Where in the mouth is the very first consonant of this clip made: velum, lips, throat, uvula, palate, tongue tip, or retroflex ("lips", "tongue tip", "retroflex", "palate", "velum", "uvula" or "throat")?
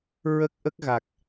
tongue tip